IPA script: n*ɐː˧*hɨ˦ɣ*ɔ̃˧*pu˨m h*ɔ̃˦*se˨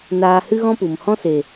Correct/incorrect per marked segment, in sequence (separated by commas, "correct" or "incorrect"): incorrect, incorrect, correct